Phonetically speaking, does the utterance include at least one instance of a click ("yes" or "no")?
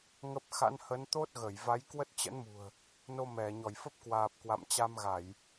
no